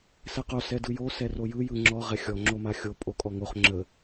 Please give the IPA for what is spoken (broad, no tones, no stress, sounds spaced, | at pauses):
s ɛ q o s ɛ d ɯ j o s ɛ r o j ɯ j ɯ ŋ͡ǁ ɔ ʁ ɛ xʲ ɔ ŋ͡ǁ o m a xʲ o pʼ o kʼ ɔ ŋ o χ ŋ͡ǁ ə